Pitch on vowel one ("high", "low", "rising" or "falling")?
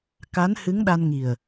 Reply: rising